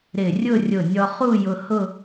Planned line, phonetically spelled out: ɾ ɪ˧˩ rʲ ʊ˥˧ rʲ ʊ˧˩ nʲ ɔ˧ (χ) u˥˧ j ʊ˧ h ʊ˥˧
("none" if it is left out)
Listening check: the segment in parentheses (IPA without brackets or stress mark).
χ